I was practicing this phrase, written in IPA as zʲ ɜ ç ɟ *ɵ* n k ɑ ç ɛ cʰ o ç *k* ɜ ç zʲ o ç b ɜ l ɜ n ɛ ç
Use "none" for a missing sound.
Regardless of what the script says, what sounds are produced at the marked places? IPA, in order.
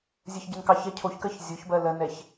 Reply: ɵ, k

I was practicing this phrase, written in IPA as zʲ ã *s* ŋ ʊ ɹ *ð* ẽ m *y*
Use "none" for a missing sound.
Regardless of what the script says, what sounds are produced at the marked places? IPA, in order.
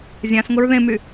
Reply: s, ð, y

